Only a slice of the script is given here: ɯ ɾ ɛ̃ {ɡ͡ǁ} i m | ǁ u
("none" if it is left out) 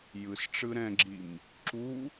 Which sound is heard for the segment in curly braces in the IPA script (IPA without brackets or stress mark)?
ɡ͡ǁ